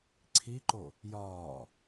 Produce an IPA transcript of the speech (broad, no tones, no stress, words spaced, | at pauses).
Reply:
ǀʰiǃo | jɒː